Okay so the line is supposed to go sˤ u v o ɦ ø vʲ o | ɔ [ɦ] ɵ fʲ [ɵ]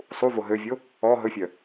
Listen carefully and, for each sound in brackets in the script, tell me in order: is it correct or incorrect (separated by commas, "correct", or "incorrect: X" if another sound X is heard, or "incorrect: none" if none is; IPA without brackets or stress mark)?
correct, incorrect: œ